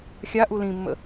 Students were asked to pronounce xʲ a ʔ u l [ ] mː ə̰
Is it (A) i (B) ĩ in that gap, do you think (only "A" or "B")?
B